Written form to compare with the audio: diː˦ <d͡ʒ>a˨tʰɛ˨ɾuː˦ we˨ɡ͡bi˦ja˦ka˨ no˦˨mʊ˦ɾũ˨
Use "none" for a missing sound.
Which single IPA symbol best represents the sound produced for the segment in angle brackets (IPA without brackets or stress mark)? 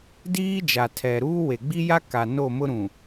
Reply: d͡ʒ